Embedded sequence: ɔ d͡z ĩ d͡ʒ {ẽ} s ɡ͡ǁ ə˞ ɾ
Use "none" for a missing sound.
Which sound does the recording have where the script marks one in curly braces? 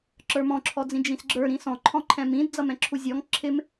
ĩ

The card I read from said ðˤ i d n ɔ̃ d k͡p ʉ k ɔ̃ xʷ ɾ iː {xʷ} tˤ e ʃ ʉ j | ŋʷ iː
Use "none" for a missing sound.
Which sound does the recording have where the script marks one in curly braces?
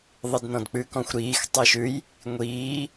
x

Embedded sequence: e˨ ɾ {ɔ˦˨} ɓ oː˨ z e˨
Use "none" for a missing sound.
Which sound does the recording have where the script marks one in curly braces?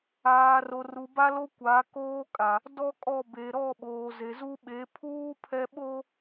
ɔ˦˨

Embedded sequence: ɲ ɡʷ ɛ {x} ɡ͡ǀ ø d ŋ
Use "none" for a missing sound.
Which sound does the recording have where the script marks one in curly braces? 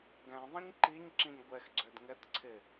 x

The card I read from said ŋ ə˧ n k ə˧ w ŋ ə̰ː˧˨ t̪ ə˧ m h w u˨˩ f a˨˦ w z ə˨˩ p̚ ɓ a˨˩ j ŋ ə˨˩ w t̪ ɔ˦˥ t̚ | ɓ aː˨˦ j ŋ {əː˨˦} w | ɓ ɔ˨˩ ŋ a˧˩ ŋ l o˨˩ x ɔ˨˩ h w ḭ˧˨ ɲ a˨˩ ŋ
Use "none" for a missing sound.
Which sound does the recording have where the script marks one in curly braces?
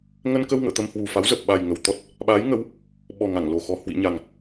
ə˨˦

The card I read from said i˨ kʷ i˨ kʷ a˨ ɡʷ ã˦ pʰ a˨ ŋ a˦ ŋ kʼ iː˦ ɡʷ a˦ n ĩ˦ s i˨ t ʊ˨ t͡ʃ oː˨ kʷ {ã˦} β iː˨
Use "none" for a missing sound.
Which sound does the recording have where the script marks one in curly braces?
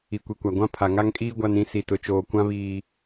ã˦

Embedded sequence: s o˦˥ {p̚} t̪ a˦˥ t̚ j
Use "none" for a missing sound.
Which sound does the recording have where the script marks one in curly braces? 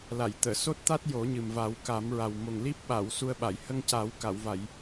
t̚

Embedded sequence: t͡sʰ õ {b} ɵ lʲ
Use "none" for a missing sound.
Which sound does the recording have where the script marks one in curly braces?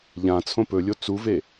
p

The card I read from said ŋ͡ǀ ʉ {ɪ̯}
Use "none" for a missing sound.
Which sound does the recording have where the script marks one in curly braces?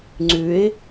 ɪ̯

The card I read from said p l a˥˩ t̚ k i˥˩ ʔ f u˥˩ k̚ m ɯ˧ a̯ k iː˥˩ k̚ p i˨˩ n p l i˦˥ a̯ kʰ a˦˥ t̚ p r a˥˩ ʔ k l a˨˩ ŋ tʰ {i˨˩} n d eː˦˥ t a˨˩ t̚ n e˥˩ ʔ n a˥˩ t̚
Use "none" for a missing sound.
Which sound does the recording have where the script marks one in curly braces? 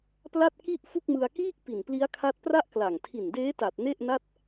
i˨˩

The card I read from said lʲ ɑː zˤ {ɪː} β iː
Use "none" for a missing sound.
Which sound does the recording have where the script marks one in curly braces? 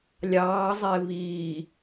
ɪː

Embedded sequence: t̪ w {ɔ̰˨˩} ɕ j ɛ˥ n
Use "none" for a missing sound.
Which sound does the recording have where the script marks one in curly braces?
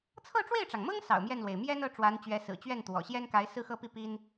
ɔ̰˨˩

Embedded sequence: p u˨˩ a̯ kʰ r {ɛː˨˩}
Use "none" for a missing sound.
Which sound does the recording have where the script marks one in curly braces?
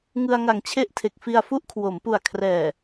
ɛː˨˩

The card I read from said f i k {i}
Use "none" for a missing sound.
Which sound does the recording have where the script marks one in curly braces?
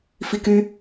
y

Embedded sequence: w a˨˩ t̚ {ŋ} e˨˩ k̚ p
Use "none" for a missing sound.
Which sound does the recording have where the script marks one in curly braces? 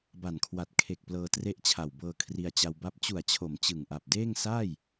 kʰ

